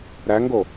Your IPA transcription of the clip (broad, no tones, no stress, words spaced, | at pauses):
ɾæŋɡo